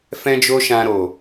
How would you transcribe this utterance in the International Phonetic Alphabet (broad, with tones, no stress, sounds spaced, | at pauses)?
f ɛ̃˦ d͡ʒ o˦ ʃ ã˧ ɾ o˨